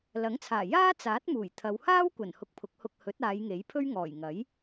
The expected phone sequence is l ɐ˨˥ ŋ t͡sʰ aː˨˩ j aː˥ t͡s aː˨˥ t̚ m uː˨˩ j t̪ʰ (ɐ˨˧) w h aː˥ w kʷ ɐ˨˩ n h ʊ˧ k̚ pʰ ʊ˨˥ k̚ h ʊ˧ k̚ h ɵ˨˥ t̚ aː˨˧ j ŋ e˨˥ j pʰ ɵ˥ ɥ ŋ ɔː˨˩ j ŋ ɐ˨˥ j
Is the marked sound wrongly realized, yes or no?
no